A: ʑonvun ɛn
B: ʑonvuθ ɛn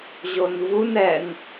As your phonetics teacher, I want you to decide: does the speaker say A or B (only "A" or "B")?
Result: A